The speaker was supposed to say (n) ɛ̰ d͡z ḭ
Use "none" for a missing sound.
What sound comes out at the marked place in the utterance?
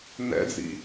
n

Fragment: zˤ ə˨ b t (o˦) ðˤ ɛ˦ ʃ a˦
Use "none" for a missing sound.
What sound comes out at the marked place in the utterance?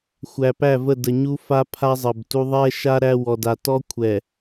u˦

